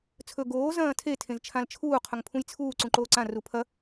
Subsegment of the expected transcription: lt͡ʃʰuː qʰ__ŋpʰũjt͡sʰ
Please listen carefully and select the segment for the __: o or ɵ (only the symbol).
ɵ